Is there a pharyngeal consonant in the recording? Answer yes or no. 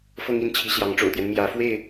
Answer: no